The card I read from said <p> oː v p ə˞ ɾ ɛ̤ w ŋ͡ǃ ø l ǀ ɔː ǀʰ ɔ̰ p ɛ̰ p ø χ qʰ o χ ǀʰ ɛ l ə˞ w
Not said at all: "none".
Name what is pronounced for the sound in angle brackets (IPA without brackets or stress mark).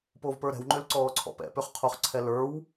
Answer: p